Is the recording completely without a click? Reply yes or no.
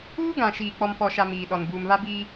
yes